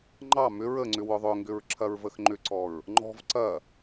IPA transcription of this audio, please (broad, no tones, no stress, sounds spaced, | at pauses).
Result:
ŋ͡ǃ ɑ m ʏ ɹ ə ŋ͡ǀ ʏ w ʊ ðˤ ʏ ŋ ɡ ʏ ɹ ǁʰ ɐ ɹ v ə x ŋ͡ǃ ʏ ǀ ɔ ɹ | ŋ͡ǃ ɔ̤ v ǀ ɐ